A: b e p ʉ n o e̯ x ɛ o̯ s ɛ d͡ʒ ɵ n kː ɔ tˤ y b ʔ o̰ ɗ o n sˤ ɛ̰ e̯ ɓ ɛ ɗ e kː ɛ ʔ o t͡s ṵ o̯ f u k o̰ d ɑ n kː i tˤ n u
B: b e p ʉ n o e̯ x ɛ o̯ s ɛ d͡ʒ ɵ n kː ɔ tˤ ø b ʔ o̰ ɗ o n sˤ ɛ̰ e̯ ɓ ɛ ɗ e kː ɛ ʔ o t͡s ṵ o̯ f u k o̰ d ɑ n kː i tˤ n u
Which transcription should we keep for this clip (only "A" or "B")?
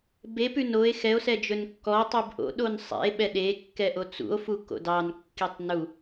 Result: A